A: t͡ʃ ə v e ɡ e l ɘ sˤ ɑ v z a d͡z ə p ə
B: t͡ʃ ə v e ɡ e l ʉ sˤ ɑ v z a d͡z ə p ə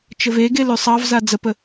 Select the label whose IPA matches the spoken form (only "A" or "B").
B